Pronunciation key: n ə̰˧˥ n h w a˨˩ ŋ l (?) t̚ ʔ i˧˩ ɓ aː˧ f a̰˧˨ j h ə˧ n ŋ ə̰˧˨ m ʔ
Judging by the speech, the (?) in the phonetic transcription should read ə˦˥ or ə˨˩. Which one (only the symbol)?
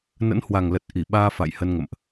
ə˨˩